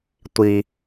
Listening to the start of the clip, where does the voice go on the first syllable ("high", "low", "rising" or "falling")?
low